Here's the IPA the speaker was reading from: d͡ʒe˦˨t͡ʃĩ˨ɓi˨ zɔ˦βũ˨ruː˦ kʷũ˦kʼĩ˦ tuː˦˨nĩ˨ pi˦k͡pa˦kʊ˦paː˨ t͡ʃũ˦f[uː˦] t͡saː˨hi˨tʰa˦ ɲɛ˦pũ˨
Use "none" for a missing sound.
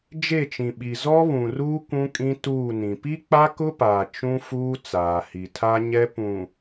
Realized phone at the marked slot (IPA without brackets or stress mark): uː˦